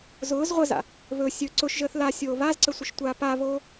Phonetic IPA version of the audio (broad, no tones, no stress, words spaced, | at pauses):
zʊːz ʁʷəza̰ | βɵ sʲɵ ǀʊʃʒəːθ lasʲoː βazǀəsʷəʃtʷaː paβoː